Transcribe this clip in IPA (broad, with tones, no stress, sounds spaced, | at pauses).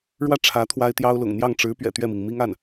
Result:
ɻ w ä˥˩ ʈ͡ʂʰ ä˧˥ t̪ʰ w a˥ ɪ̯ t̪ j ɑ˥ ʊ̯ l ʊ̰˨˩ ŋ n̪ j ɑ˥˩ ŋ ʈ͡ʂ ɻ̩˧˥ p ɥ ɛ̰˨˩ t̪ ɥ ɛ˥˩ m i˩ ŋ m i˥ ŋ a˥˩ n